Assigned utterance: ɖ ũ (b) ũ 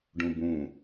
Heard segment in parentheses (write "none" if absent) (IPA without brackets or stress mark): b